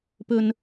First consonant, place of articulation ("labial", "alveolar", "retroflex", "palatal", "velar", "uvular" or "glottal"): labial